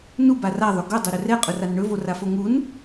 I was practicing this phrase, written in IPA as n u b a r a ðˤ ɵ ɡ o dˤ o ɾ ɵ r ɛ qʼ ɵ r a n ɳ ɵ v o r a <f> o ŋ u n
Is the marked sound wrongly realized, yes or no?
no